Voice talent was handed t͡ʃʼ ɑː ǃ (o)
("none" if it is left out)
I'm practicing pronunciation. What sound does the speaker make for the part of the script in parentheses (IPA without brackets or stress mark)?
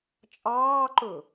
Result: ɵ